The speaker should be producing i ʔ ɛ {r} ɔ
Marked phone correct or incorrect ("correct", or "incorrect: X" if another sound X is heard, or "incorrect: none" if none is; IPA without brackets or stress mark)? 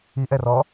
correct